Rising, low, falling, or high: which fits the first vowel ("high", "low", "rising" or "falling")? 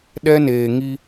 high